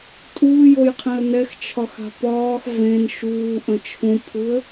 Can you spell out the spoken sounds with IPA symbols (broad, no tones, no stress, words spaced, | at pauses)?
tʼuːjojqʰẽə̯ nɛxt͡ʃʰɒxa̤ pɒːx vẽn ʃuːʔə̃ t͡ʃʰũpʰuə̯